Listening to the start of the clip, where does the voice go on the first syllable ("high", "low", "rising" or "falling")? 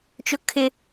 high